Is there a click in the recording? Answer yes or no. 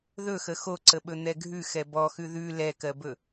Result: yes